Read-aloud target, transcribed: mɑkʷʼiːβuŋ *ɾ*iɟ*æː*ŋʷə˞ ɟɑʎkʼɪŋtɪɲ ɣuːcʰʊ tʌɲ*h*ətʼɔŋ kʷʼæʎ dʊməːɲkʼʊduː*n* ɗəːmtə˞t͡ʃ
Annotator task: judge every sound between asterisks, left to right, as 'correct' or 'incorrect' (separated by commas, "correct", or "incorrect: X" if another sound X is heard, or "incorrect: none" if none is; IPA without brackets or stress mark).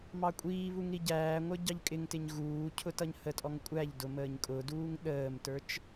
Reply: correct, correct, correct, incorrect: ŋ